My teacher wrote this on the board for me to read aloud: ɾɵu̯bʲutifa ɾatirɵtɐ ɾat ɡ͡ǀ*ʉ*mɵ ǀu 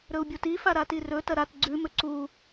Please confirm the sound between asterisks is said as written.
yes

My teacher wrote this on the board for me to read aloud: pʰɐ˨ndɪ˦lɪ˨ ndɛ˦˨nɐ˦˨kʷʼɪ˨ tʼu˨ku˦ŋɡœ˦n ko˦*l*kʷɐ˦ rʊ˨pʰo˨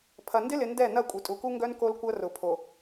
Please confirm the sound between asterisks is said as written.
yes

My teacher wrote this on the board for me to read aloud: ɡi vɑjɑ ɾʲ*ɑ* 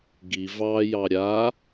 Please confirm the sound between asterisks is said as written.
no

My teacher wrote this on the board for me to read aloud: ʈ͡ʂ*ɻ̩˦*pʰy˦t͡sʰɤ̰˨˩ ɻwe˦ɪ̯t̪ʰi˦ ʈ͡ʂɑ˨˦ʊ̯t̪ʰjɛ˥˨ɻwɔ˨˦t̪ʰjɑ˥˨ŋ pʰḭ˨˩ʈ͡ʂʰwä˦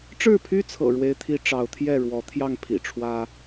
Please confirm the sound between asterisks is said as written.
no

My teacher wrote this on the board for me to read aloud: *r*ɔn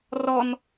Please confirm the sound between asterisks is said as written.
yes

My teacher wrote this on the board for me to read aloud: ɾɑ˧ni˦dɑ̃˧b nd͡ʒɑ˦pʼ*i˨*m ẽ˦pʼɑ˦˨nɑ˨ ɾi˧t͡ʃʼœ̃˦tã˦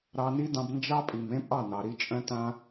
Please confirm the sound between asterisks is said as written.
yes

